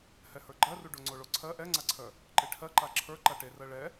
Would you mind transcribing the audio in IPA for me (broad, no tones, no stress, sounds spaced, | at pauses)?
h ɛ h ə˞ ɡ͡ǃ ɜ r u ɖ o ŋ͡ǀ o ɭ o ǀʰ ɜ ʔ ɛ ŋ͡ǀ a ǀʰ œ | ǃ e ʈʰ ɜ ǃ a ǁʰ ə˞ ǃ a ʈ e r ɜ ɭ ɛ